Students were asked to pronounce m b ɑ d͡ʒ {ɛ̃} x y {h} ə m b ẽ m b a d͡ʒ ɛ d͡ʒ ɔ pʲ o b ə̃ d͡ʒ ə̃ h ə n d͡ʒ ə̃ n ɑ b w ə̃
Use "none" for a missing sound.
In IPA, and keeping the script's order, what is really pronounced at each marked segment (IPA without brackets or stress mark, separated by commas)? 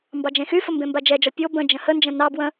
ẽ, f